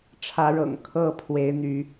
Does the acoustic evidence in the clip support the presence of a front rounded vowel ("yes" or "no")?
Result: yes